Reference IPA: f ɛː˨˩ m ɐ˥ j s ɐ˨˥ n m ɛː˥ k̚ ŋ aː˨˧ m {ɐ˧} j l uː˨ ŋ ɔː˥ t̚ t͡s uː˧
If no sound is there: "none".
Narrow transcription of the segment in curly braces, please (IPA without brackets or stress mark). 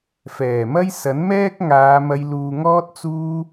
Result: ɐ˧